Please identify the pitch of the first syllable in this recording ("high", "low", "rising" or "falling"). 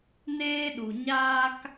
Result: high